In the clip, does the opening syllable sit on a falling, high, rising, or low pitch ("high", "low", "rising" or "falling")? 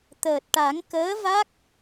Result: low